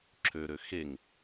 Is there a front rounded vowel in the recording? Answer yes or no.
yes